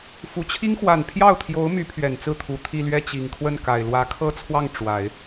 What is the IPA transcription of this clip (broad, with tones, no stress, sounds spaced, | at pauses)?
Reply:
f u˨˩ t͡ɕʰ i˥ ŋ x w a˨˩ n pʰ j ɑ˥˩ ʊ̯ t̪ʰ j o˧˥ ʊ̯ m y˧˥ pʰ ɥ ɛ˨˩ n t͡s ɹ̩˥˩ t̪ʰ u˨˩ t̪ʰ i˥˧ l ɥ ɛ˥˩ t͡ɕ i˨˩ ŋ kʰ w ə˥˩ n k a˨˩ ɪ̯ l w ä˧˥ kʰ ɤ˥ t͡sʰ w ɑ˥˩ ŋ ʈ͡ʂ w a˨˩˦ ɪ̯